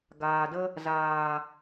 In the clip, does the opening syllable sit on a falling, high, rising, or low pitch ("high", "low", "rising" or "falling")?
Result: low